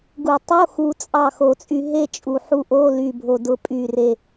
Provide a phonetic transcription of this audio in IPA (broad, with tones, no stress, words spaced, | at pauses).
ɡu˨˩˦tˤo˧˥˧ xu˧ t͡sʼɑ˥˨xo˧t͡sʼy˧ ɦe˥˨t͡ʃʼu˨˩ ħu˧ʔo˧˥˧ ly˨˩bʱo˨˩dʊ˨˩˦ pʼy˨˩ re˨˩